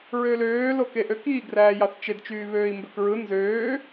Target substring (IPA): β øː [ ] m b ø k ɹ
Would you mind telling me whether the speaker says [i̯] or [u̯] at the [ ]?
i̯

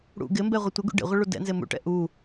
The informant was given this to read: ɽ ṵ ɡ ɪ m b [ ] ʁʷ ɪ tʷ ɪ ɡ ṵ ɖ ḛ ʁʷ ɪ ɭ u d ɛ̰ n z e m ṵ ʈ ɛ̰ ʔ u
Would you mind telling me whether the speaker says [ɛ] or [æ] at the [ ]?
ɛ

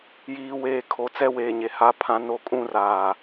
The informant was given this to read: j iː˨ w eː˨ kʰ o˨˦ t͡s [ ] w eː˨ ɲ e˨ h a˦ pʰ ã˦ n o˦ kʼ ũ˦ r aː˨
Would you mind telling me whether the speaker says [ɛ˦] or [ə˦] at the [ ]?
ɛ˦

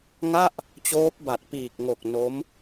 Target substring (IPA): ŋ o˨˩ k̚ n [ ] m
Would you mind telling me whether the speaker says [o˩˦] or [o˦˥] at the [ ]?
o˦˥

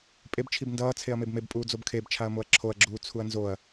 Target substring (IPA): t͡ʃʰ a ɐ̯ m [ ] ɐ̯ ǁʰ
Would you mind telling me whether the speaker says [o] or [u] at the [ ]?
o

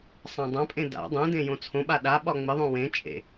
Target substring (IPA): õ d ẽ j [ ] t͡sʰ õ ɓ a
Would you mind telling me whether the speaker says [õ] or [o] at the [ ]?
õ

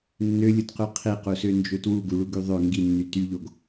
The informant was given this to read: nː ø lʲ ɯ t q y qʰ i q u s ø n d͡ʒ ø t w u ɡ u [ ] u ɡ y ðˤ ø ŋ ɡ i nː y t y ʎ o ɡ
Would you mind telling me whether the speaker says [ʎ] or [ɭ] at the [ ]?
ɭ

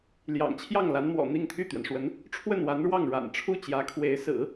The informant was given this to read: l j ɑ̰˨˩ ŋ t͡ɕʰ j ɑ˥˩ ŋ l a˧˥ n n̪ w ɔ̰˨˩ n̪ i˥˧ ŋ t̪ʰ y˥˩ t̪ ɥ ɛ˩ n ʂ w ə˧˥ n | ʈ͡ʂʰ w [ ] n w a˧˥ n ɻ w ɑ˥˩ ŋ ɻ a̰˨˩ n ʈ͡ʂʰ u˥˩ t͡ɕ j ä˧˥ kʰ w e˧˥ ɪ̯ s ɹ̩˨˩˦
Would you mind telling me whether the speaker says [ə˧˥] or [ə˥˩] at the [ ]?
ə˥˩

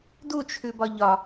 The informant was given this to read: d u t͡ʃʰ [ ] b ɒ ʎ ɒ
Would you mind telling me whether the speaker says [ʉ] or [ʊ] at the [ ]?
ʉ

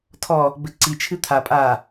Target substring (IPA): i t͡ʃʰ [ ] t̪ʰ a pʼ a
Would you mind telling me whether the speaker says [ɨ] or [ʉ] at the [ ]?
ɨ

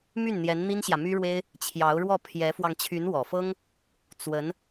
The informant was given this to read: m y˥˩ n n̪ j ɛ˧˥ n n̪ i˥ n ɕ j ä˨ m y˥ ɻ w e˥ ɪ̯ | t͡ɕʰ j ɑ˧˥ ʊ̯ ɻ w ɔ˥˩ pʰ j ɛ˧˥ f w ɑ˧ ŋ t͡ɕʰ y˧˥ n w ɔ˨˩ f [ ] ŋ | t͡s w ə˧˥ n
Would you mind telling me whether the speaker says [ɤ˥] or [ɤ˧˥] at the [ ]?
ɤ˥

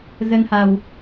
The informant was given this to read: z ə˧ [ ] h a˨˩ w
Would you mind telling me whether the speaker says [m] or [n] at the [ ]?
n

